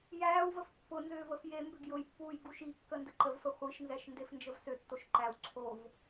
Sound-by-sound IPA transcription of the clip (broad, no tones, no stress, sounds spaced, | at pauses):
j æː w v ə f pː ʊ n z ʏː v ə f j e m b ʏ ɡ j ʊ j pː uː j ɡ u ʃ i kː ə n d ə ǃ ə v f ə χʷ i ʃ n z ɛ ʃ n d e f n d͡ʒ ə v s ʏ tː o ʃ ǃ æ w ǀʰ o v